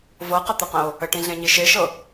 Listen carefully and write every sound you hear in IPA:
vɤqət̪əqə̃o̯ | əʈĩɮẽɲi ʃeʃɤ

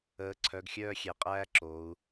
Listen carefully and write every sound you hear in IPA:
əː˩˥ǀʰœ˩˧˩ɡxʲœː˦˨xʲe˩˧ qʼæː˦ǁoː˩˧u̯

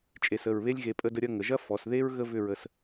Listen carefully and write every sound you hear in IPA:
t͡ʃʼe˧˩sə˧˩ɹ βe˥lʲ ɣe˧pʼə˥˧də˥˧ ɾʲɐ˥˧ŋə˩˧ʒɐ˥ fɔ˩˧sðe˥ɹ ɣə˥vʏ˥˧ɹə˧s

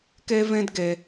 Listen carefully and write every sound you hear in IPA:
ke˦vẽ˦dɡe˧

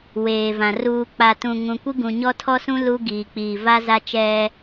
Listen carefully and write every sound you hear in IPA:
weː˨vã˨ ruː˨k͡pa˨ tũ˨ŋũ˨kʷi˦ ɡũ˨ɲɔ˦tʰɔ˦sũ˦ lu˦ ɡiː˨k͡piː˨va˦ za˦t͡ʃɛ˦

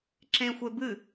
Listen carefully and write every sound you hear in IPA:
ǁẽxʷebɨ

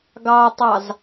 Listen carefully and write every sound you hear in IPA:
ɡɑtˤɑz

